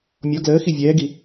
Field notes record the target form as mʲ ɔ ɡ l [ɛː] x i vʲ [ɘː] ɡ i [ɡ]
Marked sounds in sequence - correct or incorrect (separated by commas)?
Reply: incorrect, incorrect, incorrect